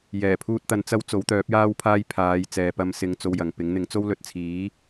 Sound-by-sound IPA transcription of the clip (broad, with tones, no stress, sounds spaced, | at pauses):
j ɛː˨˩ pʰ uː˧ t̚ t̪ ɐ˨˧ n t͡s ɐ˧ w t͡s o˨˥ w t̪ œː˨˥ p̚ j aː˥ w pʰ aː˥ j pʰ aː˨˧ j t͡s ɛː˨ p ɐ˧ m s ɪ˧ ŋ t͡s o˧ w j ɐ˨ ŋ p ɪ˨˥ ŋ n̪ ɪ˨˥ ŋ t͡s o˥ w l ɵ˧ t̚ t͡sʰ iː˨˥